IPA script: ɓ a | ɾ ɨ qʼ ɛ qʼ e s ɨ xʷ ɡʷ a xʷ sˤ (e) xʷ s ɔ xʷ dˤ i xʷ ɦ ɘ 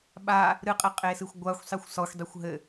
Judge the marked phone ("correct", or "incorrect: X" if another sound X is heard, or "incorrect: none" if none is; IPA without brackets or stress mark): incorrect: i